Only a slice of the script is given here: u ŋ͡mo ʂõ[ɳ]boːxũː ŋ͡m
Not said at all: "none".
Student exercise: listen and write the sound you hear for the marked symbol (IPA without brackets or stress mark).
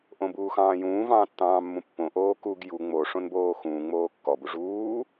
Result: n